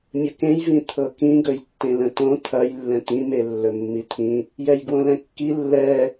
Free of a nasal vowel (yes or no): no